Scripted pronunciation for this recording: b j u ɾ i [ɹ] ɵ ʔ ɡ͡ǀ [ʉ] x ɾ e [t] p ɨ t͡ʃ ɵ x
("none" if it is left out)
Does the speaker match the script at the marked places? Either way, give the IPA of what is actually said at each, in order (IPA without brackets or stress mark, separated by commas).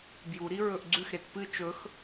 ɹ, ʉ, t